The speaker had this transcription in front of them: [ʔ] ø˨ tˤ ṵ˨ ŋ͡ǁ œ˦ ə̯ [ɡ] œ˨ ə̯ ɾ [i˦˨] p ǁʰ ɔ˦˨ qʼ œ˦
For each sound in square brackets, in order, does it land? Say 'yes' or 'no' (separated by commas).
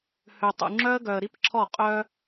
no, yes, no